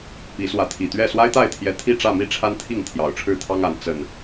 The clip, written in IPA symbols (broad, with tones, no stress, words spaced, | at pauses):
pi˨˦swä˨˦t̪ʰi˨˩t̪ɥɛ˥˨ swa˦ɪ̯t̪a˥˨ɪ̯t̪ʰjɛ˨˦ t̪ʰi˥˨ʈ͡ʂä˥˨mi˥˨ ʈ͡ʂʰa˦nt̪ʰi˥˨ŋ t̪ʰjɑ˨˩ʊ̯ʈ͡ʂʰɻ̩˥˨t̪ʰɑ˦ŋa˨˦n t͡sə˨˩n